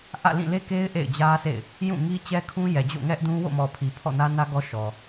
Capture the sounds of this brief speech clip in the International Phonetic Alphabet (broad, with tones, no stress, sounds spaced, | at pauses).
ʔ ä̰˦˨ l ĩ˦˨ l e˦ k e˦ ɪ̯ ʔ ḛ˦˨ ɪ̯ d͡ʑ ä˦ sʰ ḛ˦˨ ɪ̯ | j ũ˦˨ ŋ i˦ t͡ɕ ɛ˦ kʰ ũ˦ j ɛ˨ d͡ʑ o̰˦˨ ŋ ɛ˦ ʔ d ũ˦ w o̰˦˨ m ɔ˨ pʰ i˨ pʰ ɔ̰˦˨ n ä˦ n ä˦ ɡ ɔ˦ ʃ ɔ˨